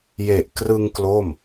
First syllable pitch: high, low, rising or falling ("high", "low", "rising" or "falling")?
low